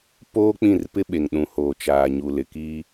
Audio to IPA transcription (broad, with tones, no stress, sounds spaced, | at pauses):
p oː˦ k͡p ĩ˦˨ r p ɪ˦ ɓ e˨ ŋ ɗ ũ˨ h oː˨ t͡ʃ aː˨ ɲ u˨ l ɪ˨ k iː˦